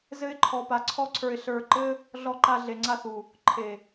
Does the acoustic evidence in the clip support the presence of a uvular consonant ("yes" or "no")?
no